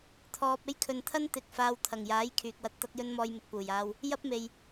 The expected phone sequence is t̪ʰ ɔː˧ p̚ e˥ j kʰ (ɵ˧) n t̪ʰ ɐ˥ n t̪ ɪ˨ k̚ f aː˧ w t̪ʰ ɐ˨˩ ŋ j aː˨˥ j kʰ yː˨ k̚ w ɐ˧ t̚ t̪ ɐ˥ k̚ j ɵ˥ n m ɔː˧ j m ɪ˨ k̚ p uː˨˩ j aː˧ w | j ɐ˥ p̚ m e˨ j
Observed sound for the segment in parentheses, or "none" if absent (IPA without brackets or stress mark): ɵ˨